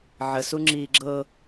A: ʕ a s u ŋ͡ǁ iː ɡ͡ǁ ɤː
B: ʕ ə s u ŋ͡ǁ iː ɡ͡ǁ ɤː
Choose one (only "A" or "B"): B